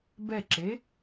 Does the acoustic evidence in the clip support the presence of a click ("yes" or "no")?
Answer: yes